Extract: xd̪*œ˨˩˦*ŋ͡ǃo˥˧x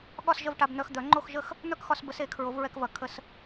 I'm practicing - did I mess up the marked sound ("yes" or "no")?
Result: no